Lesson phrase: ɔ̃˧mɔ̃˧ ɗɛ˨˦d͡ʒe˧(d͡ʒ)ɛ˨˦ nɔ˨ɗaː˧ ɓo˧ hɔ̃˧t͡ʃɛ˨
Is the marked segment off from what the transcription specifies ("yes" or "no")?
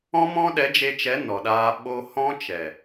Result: yes